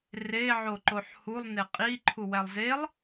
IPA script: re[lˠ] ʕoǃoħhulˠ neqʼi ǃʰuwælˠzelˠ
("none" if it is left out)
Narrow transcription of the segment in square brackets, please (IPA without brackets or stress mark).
none